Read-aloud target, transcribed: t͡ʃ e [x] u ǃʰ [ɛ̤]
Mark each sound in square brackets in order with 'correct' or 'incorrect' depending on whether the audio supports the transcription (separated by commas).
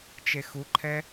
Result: correct, incorrect